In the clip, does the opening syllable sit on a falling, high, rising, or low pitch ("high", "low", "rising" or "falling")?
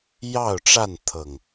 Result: falling